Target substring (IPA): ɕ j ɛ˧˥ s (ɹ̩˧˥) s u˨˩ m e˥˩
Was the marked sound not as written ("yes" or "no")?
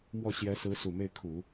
no